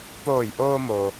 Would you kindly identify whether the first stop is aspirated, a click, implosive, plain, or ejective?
plain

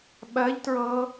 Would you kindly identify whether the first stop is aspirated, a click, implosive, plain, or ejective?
implosive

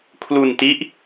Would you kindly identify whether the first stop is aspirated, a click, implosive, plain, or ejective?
aspirated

